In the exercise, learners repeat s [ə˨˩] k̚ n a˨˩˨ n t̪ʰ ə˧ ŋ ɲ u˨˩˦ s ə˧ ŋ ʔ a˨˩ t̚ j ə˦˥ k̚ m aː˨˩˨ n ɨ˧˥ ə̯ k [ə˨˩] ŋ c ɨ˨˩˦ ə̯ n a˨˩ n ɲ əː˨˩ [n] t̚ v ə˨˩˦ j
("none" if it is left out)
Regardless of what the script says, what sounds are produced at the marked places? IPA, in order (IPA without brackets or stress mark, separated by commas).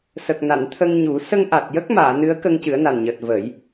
ə˨˩, ə˧, none